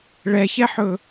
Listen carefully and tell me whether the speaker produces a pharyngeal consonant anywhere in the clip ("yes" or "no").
yes